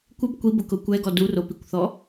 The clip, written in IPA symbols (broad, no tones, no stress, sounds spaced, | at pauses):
kʷ ɪ b kʷ i b ʊ k ʊ kʷ ɛ ɡ ɔ d u r o p i kʷ θ ɔ